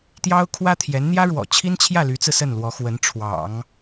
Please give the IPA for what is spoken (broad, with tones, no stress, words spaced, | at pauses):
t̪jɑ˥ʊ̯kʰwä˥t̪ʰjɛ˧˥n n̪jä˥ɻwɔ̰˨˩t͡ɕʰi˥nt͡ɕʰjä˥˩ ly˧˥t͡sɹ̩˧ sə˥˩nlwɔ˧˥xwə˧˥n ʈ͡ʂʰwɑ̰˨˩˦ŋ